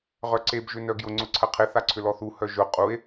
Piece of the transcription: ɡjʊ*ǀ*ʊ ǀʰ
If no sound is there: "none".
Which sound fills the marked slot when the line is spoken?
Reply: ŋ͡ǀ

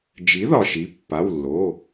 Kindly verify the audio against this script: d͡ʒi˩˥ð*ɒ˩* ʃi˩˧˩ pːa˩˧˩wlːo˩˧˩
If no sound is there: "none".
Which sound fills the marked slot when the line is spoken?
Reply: ɒ˩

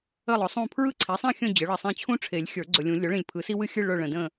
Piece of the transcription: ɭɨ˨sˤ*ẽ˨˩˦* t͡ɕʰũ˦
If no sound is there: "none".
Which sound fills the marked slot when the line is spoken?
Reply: ẽ˥˨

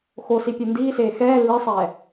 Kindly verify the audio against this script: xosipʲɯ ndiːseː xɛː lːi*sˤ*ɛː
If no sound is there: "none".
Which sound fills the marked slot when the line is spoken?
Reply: sˤ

